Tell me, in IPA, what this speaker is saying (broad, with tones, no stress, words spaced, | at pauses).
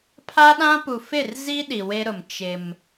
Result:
pʰa˦ɗã˦pu˨ fɪ˦˨rzi˦ ɗi˨we˦ɾʊ˨m t͡ʃɪ˦m